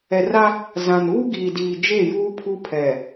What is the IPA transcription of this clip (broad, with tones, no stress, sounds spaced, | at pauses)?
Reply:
ɛ˨ r a˦ | z ã˨ n uː˦ ɡ iː˨ d iː˨ d͡ʒ e˦˨ j uː˦ pʰ u˦ pʰ ɛ˨